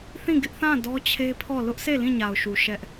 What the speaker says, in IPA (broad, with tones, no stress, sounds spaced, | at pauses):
θ ĩ˦˨ ɡ ɪ˦ ʔ θ ã˦˨ d ɔ˦ t͡ɕʰ e˦ pʰ ɔ˦˨ l ʊ˦ ʔ sʰ e˦˨ l ĩ˦˨ ɲ a˨ ʊ̯ ʃ u˨ ʃ ɛ˦ ʔ